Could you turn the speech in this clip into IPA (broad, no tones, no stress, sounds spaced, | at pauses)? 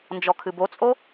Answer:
n d͡ʒ ɔ kʰ ɨ b o t͡sʼ o